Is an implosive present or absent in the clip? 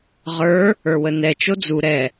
absent